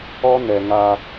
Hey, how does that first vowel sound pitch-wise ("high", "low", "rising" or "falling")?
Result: high